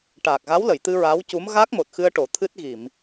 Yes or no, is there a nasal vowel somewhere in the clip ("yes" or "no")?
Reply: no